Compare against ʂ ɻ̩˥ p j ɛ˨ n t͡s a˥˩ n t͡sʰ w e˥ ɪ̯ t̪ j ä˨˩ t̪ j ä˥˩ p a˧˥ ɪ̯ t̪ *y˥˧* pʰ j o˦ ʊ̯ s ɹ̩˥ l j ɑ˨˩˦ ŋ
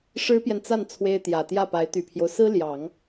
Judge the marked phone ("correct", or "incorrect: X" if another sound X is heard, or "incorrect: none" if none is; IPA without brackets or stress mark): incorrect: y˨˩